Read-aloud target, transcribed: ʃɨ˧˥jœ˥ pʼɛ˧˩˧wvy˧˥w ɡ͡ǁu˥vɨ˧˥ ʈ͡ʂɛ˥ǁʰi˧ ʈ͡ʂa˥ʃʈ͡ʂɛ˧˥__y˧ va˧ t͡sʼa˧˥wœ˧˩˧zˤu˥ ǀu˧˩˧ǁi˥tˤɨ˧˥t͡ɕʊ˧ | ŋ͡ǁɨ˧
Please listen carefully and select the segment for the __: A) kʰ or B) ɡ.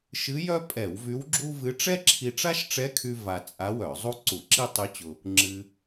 A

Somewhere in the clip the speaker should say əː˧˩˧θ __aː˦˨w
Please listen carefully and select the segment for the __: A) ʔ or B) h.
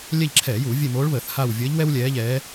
B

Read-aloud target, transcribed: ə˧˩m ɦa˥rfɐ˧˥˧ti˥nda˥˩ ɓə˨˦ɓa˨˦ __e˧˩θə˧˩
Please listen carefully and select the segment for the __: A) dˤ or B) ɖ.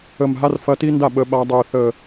A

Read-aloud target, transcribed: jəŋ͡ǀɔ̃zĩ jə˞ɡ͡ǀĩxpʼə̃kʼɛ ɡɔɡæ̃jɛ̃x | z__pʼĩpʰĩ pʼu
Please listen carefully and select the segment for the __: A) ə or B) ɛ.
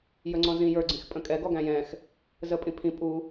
A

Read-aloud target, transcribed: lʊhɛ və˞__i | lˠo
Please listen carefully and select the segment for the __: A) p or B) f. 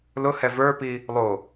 A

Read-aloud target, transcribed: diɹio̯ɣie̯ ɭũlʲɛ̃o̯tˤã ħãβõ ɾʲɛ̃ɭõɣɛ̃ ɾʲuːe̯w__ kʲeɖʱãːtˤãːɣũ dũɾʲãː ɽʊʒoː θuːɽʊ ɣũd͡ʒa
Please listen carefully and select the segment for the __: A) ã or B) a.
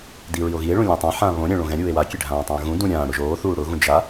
B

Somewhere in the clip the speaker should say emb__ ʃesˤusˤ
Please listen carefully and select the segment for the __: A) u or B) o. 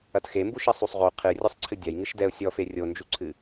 A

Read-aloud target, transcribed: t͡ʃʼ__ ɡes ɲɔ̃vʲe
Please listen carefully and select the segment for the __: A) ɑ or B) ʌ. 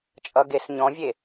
B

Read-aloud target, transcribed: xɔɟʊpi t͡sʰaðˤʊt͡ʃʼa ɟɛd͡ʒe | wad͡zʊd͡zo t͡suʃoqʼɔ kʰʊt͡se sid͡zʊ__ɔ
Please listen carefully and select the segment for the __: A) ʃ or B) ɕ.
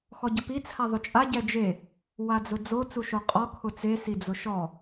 A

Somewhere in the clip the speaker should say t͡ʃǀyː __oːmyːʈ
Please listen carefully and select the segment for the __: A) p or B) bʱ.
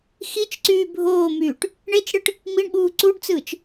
B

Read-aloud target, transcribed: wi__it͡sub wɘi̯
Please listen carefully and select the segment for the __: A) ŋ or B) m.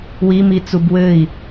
B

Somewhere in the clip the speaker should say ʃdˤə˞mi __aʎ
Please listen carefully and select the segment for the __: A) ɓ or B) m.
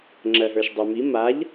B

